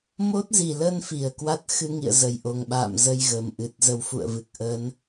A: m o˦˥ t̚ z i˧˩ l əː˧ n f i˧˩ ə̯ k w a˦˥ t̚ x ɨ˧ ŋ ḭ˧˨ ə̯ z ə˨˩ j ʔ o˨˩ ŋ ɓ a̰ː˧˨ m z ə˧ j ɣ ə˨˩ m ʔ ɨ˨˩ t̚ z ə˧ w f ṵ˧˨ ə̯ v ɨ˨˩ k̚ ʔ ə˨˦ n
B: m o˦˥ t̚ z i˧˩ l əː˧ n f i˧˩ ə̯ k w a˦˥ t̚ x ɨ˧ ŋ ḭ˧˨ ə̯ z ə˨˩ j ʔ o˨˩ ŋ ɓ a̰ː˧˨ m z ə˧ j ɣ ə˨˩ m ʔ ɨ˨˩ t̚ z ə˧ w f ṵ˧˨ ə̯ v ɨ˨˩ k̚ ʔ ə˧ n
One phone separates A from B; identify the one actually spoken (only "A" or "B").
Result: A